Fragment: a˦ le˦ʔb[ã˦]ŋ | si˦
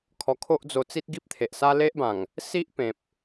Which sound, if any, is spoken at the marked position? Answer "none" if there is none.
ã˨˩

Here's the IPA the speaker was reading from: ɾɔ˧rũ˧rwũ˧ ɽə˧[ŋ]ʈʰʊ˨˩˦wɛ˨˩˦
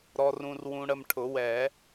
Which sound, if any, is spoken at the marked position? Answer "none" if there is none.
m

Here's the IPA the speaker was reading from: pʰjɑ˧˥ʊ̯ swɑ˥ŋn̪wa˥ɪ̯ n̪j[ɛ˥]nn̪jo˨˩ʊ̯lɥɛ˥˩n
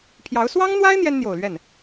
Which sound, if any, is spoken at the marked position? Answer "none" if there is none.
ɛ˥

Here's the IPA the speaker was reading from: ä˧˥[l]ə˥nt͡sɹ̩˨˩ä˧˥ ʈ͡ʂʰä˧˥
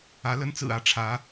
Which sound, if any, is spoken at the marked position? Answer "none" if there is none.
l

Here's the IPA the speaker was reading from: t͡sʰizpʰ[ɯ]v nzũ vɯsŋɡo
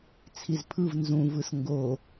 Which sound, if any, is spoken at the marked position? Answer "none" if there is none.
ɯ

